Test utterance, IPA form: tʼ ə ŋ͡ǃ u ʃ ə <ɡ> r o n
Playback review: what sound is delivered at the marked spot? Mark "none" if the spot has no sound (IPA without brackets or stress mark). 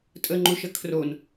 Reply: kʰ